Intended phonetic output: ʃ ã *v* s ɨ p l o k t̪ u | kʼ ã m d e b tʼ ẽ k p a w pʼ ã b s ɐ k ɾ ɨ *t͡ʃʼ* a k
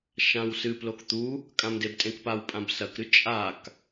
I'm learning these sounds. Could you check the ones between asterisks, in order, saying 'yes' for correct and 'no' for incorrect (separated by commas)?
no, yes